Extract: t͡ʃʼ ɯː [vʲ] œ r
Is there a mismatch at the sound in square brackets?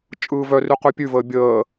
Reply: yes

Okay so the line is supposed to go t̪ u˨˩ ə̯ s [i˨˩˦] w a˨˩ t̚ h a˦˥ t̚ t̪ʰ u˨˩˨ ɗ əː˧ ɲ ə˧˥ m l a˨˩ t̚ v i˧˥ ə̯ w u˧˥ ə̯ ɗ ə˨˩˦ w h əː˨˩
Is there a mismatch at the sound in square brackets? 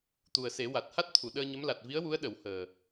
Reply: yes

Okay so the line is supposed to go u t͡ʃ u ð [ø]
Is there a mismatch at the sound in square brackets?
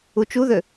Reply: no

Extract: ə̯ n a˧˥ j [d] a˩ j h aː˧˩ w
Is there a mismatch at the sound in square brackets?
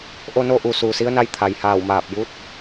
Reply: yes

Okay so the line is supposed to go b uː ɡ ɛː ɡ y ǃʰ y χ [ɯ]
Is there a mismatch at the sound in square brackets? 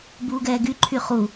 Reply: yes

